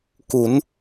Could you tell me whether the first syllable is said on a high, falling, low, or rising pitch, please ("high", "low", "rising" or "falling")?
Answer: rising